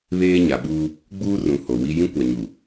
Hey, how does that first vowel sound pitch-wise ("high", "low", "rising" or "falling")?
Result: high